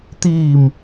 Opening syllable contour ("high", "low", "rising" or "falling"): low